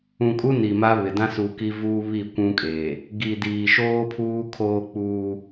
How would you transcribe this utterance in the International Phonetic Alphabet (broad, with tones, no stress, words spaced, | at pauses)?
ũ˨kʼu˦ ni˨ma˦βɪ˨ dã˦su˨ki˦vuː˦ βi˦˨ kʷũ˦kʼe˨ | ɡi˨diː˨ʃoː˦ pʰuː˦kʰoː˦k͡puː˦